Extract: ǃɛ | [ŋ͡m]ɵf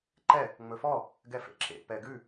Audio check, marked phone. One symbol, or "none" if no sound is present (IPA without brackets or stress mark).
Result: ŋ͡m